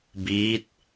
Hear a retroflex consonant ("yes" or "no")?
no